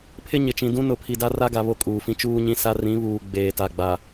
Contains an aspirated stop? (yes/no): yes